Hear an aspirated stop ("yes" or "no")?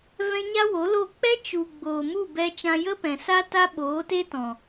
no